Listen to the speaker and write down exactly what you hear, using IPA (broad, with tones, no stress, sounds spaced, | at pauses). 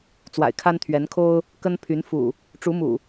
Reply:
t͡s w a̰˨˩ ɪ̯ kʰ a˦ n t̪ʰ ɥ ɛ˨˦ n kʰ o˦ ʊ̯ | k ə˦ n pʰ y˨˦ n f ṵ˨˩ | ʈ͡ʂ u˨˦ m ṵ˨˩